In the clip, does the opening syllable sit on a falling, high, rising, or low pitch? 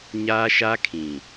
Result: high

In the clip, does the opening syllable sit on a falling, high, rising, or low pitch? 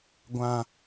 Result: high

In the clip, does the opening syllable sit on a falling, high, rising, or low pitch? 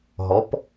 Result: rising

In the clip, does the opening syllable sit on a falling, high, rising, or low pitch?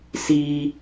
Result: high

